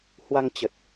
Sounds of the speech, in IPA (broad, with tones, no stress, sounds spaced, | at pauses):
h w a˧ ŋ t͡ɕ ə˨˩ t̚